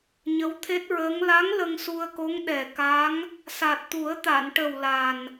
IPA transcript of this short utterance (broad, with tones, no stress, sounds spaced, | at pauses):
ɲ ə˧˥ w t̪ʰ e˦˥ t̚ ɹ əː˧˥ ŋ l a˧˥ ŋ l ə˧ ŋ s u˧ ə̯ k o˧˥ ŋ ɗ ɛ˨˩ k a˧˥ ŋ | s a˨˩ t̚ t̪ u˨˩˦ ə̯ t̪ a˨˩˨ n ʈ ə˨˩ w l a˨˩ n